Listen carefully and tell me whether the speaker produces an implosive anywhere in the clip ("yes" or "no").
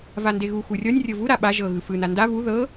yes